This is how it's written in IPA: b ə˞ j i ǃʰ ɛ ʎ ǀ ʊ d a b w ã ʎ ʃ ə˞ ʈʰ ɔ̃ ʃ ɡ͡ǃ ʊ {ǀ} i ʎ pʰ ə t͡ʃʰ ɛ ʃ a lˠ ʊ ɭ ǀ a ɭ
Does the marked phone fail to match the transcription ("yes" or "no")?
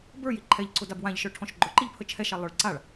yes